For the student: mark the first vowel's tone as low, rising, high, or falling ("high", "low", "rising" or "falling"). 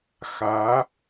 rising